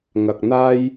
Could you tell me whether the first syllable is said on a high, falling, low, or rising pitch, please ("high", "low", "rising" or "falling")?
low